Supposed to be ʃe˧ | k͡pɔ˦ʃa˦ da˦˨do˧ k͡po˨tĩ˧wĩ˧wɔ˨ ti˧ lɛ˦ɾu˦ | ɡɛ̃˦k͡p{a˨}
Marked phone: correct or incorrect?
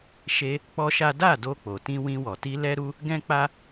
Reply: incorrect